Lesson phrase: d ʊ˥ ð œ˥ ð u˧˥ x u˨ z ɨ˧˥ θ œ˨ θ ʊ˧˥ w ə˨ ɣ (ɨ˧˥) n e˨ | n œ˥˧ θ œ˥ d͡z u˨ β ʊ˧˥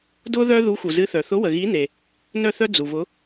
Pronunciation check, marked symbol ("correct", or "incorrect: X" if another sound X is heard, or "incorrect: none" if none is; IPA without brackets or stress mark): incorrect: i˧˥